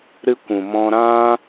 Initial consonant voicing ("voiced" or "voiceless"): voiced